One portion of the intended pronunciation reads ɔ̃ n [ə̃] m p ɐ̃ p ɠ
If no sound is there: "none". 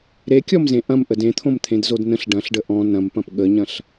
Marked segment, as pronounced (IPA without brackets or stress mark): ɐ̃